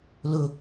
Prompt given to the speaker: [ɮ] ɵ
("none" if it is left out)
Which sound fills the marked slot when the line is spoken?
l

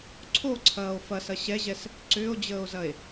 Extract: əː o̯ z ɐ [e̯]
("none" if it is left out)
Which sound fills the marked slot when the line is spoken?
e̯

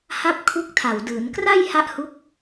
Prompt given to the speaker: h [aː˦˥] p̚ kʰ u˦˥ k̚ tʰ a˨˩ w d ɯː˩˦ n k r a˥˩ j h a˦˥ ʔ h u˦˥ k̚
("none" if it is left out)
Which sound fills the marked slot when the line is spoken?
a˦˥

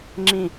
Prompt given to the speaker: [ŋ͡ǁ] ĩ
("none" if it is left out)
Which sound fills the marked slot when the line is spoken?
ŋ͡ǁ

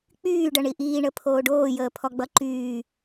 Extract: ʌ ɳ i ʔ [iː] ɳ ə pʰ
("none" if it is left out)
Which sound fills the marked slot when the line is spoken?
iː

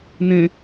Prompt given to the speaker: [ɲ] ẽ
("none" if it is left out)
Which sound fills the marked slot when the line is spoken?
n̪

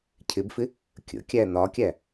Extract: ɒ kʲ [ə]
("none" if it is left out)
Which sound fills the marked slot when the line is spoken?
æ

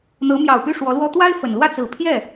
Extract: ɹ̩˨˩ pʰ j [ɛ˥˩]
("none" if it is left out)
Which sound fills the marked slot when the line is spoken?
ɛ˥˩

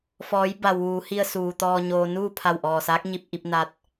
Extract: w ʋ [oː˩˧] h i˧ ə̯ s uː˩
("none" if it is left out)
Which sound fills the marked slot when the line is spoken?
uː˩˧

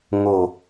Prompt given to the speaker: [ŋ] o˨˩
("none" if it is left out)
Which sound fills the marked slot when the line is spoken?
ŋ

